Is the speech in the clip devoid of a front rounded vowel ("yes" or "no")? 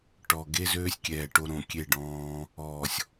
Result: no